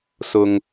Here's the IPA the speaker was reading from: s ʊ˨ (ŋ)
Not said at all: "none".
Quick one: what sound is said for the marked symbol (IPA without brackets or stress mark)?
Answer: ŋ